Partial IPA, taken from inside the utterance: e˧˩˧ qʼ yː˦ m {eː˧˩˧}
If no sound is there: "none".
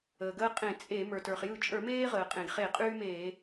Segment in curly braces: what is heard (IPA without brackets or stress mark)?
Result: eː˧˩˧